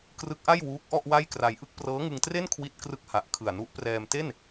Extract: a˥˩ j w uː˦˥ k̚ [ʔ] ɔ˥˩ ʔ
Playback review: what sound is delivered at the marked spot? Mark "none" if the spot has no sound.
ʔ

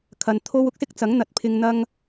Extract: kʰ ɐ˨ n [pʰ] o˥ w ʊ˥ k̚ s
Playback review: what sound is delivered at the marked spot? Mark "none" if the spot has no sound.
t̪ʰ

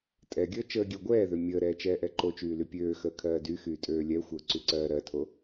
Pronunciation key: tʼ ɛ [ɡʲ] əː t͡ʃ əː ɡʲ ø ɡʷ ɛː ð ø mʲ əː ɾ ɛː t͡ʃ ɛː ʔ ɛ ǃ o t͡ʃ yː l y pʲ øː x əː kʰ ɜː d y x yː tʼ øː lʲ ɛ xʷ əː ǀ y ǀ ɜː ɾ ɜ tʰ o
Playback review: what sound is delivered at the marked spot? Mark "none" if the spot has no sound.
ɡʲ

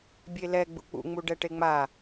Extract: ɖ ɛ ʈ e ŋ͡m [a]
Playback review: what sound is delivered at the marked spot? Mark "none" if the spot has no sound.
a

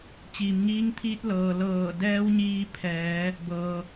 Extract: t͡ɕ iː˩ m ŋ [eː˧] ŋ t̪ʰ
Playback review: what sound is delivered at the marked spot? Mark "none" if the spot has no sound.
iː˧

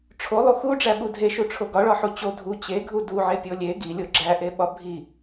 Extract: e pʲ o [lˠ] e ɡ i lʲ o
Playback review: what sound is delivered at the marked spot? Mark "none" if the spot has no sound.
lʲ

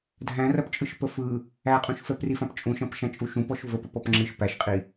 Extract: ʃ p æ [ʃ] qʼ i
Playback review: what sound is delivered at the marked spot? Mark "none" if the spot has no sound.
ʃ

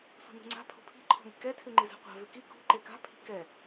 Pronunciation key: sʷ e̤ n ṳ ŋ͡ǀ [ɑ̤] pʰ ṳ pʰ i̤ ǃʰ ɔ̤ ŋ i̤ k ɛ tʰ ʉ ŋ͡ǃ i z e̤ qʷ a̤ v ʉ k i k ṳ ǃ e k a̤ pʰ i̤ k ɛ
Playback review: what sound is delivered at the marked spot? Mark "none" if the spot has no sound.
a̤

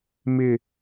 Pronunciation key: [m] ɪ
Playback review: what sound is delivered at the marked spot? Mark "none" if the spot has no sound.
m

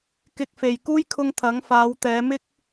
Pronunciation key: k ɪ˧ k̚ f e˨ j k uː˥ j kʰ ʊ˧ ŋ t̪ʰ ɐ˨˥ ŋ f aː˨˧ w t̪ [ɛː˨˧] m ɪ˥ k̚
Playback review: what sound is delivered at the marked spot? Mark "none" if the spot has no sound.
ɛː˨˧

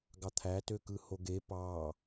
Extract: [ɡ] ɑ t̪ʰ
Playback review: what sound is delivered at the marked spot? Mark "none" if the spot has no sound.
ɡ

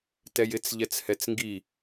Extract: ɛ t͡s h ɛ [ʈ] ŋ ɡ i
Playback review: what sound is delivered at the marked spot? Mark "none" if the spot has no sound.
t͡s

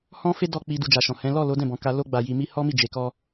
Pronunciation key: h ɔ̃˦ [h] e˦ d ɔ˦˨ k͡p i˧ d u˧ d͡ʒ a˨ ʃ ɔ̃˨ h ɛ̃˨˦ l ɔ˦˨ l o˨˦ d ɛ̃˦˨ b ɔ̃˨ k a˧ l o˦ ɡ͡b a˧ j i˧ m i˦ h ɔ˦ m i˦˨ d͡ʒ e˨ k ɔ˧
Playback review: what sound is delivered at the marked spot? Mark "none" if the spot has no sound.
f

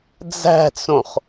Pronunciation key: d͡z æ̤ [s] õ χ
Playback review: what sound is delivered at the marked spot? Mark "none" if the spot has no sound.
t͡s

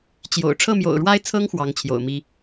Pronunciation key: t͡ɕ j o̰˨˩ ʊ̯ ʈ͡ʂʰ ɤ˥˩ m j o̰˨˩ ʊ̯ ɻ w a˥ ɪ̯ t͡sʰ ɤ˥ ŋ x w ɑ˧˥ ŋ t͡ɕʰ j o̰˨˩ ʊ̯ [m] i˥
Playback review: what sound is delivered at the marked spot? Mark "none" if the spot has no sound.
m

